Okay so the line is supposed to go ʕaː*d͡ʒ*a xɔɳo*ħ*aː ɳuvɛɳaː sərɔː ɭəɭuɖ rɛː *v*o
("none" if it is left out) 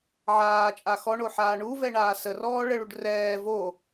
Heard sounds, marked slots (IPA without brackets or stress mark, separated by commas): t͡ʃʼ, ħ, v